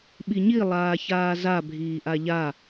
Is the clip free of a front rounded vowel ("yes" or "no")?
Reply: yes